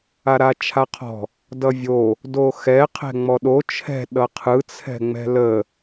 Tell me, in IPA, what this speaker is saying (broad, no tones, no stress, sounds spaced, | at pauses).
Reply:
a ɾ a t͡ʃʰ a qʰ ɔ̤ | d ʌ vʲ o | d o x ɛ qʰ ɛ̤ ŋ͡m ɔ ɗ o t͡ʃʰ ɛ̤ ɗ ʌ qʰ ɯ t͡sʰ ɛ̤ ŋ͡m ɛ̤ l ə